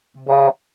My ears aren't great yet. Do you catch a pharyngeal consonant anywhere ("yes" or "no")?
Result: no